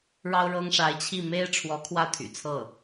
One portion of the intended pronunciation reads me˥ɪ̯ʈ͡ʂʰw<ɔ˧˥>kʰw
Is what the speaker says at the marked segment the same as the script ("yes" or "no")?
yes